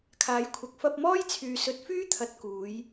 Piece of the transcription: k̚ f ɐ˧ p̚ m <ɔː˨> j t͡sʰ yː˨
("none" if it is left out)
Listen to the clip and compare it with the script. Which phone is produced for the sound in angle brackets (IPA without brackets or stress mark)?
ɔː˥